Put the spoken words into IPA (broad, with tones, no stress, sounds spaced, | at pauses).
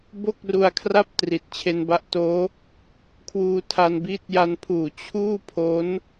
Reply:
b o˥˩ k̚ r u˧ a̯ kʰ r a˥˩ p̚ t r i˨˩ t̚ t͡ɕʰ e˧ n b a˦˥ ʔ t oː˦˥ | kʰ w uː˧ tʰ a˧ n b iː˦˥ t̚ j a˧ n pʰ uː˨˩ t͡ɕʰ uː˥˩ pʰ o˦˥ n